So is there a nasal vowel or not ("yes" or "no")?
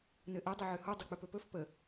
no